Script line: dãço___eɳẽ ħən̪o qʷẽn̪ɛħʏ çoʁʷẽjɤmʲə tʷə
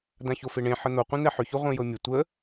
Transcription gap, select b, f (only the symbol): f